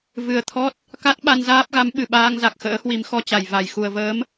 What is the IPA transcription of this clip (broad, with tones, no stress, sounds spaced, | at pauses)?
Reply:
v ɨ˨˩ ə̯ t̪ʰ ɔ˦˥ t̚ | k a˦˥ t̚ ɓ a˧ n z aː˦˥ p̚ ɣ a˨˦ m ɓ ɨ˧˩ ɓ aː˧ ŋ z a˨˩ k̚ x ə̰ː˧˥ h w i˨˦ m x ɔ˧ t͡ɕ a˨˩ j v a˧˩ j x u˨˩ ə̯ v əː˨˦ m